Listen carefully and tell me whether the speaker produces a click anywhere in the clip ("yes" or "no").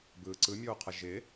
yes